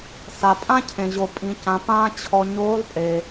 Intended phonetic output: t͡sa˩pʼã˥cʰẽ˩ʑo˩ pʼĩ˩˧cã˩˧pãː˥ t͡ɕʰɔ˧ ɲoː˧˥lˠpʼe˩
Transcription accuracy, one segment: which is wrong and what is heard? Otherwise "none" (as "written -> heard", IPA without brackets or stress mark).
t͡s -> s